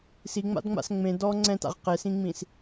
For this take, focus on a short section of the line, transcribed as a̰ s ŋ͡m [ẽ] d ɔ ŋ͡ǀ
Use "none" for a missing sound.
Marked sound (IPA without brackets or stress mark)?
ẽ